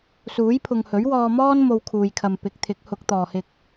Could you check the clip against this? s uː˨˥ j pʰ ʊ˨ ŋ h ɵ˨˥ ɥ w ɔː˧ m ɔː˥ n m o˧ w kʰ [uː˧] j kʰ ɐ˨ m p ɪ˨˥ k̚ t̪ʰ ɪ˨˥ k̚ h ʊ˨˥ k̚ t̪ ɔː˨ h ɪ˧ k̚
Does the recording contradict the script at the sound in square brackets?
yes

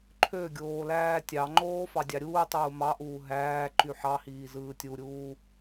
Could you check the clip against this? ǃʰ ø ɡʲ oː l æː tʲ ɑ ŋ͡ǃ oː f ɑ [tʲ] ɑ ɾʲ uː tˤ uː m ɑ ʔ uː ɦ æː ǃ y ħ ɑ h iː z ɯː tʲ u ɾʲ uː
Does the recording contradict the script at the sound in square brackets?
yes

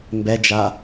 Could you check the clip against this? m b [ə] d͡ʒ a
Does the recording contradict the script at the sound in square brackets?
yes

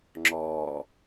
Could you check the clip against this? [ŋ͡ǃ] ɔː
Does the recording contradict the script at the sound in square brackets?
yes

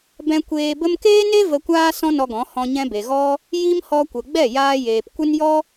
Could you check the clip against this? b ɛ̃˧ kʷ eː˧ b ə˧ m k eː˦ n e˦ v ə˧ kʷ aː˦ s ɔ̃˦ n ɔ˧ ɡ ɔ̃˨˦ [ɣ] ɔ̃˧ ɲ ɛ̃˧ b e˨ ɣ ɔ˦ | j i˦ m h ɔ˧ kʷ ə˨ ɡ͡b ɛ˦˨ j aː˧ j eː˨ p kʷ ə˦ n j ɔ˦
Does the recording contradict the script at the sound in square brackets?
yes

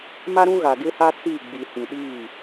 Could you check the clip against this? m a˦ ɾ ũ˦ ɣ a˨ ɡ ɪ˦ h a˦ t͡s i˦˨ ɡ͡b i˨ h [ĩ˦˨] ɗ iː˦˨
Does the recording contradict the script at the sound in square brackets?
yes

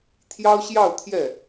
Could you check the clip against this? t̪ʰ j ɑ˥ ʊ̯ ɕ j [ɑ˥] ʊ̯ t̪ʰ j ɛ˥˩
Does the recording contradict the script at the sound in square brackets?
yes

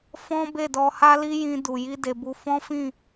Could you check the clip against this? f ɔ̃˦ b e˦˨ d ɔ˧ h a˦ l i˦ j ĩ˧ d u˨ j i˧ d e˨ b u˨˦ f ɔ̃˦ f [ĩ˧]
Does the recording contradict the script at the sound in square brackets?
yes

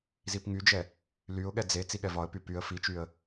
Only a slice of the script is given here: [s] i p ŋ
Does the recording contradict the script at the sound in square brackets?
yes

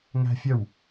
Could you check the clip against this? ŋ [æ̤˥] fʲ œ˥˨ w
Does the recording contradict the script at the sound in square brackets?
no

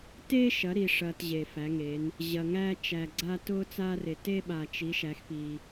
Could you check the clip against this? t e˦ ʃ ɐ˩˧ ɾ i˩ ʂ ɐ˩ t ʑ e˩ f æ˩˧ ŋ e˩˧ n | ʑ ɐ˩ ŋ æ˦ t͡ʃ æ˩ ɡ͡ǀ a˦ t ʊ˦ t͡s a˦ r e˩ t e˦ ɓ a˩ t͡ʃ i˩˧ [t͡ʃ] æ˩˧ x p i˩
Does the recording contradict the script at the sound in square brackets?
yes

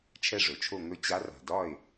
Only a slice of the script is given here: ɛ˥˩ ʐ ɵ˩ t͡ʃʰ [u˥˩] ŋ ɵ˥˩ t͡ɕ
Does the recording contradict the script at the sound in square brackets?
yes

